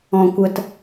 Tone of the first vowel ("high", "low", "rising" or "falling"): low